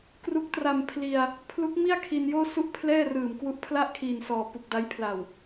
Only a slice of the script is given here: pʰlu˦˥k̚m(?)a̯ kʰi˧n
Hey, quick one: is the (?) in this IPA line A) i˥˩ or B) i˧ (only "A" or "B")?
A